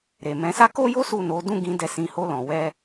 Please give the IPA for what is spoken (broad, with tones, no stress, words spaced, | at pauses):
ɾe˨mɛ̃˨˦sa˦ ko˦jo˦ su˦˨no˨˦ dũ˦˨ɡĩ˧ dɛ˧sĩ˧ ho˧lɔ̃˨wɛ˧